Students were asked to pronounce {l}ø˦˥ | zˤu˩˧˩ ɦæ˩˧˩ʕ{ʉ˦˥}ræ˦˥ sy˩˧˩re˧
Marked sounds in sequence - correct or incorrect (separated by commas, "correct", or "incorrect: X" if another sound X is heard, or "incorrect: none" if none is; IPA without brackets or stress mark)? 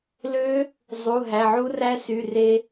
correct, incorrect: u˦˥